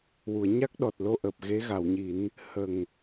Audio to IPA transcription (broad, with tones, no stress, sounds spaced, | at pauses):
w u˨˩˨ ə̯ ɲ a˦˥ k̚ ɗ ɔ˨˩ t̚ l o˧ ʔ əː˨˩ p̚ ɣ e˧˥ ɣ a˨˩˨ w ɲ i˨˩˦ n | h ə˨˩ ŋ